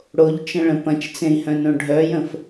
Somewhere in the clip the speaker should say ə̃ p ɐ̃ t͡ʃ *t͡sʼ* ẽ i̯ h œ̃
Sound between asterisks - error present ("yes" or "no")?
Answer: yes